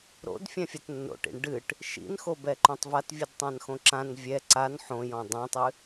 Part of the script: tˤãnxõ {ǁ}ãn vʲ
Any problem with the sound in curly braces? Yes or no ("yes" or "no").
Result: no